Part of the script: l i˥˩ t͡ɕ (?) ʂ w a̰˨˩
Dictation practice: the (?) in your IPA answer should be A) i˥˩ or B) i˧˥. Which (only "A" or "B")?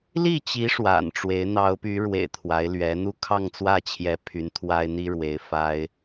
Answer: B